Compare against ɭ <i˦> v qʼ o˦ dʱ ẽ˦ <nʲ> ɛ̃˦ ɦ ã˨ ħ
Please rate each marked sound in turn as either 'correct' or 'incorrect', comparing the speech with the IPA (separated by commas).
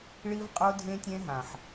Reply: correct, incorrect